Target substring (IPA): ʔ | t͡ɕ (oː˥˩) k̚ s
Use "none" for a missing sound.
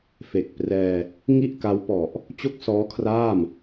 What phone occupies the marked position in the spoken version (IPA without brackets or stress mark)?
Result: o˥˩